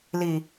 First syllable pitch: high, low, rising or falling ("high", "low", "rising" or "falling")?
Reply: low